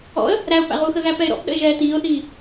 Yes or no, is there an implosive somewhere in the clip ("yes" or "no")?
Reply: yes